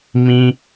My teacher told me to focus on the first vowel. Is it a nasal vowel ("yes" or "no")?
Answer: yes